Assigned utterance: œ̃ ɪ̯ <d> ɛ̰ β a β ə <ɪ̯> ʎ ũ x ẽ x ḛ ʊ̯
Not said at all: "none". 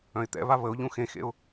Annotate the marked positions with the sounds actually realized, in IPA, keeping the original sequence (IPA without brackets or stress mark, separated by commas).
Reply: t̪, ʊ̯